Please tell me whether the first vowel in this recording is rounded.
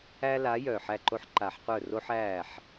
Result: no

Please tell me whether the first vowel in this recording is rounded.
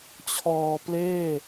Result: yes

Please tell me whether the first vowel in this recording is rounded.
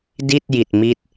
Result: no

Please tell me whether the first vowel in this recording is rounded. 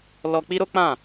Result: yes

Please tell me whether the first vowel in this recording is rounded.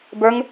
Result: no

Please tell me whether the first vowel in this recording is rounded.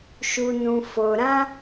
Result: yes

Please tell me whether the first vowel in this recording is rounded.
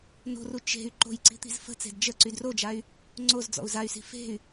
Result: yes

